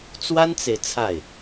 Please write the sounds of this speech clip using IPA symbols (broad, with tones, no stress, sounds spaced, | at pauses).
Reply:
t͡s w a˥ n t͡s e˨ ɪ̯ t͡sʰ a˥˩ ɪ̯